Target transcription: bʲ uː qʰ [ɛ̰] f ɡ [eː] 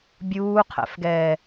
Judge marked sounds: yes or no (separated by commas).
yes, no